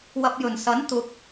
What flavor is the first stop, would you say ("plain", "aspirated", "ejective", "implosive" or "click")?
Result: plain